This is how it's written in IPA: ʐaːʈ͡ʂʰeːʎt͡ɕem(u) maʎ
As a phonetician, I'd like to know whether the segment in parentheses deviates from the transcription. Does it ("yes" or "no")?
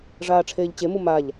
no